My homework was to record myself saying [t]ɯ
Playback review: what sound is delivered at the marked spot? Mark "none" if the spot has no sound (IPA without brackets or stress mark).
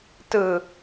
t